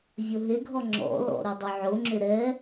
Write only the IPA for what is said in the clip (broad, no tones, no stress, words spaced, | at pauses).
vʲoɦeɡʱɔ ŋ͡ǁɔ̰lɔ̰ ɾʏdˤɵʕoŋ͡ǁʏ ɾɛ